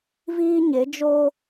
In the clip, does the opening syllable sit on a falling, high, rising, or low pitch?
high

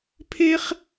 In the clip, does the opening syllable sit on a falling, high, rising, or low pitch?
high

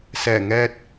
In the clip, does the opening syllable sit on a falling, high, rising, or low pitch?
low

